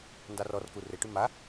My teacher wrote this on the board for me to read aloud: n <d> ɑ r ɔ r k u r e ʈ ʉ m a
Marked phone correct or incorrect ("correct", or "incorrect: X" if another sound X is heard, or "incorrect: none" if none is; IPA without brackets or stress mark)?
correct